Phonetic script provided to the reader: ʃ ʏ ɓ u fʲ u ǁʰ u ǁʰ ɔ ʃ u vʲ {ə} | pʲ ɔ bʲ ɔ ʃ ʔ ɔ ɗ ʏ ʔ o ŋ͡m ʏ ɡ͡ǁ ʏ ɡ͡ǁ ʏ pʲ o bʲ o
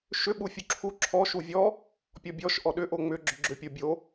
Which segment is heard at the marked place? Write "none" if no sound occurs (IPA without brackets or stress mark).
ɔ